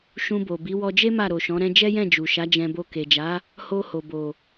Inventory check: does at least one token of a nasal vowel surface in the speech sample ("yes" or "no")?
yes